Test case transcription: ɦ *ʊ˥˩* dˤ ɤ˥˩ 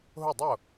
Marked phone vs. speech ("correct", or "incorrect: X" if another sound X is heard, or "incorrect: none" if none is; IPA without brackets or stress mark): correct